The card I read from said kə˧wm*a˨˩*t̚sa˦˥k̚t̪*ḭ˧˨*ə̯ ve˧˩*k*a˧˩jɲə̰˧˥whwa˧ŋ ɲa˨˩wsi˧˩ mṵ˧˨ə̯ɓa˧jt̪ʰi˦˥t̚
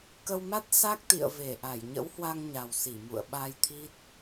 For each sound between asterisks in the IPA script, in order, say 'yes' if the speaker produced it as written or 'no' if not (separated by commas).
no, yes, no